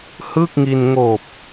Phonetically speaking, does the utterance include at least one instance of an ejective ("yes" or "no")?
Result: no